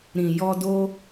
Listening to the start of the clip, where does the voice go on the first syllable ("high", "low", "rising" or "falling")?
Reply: low